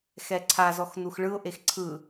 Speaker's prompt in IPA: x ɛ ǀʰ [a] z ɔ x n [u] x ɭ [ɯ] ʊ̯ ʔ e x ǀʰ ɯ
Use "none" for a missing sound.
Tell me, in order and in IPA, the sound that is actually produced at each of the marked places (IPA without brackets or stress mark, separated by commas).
a, u, ɯ